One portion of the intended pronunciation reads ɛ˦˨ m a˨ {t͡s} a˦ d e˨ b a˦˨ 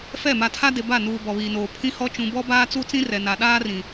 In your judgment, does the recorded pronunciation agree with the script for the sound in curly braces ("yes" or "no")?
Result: no